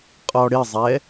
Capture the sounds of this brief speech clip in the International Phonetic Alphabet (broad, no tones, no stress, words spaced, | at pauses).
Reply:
qʼɔɽɪzˤɛ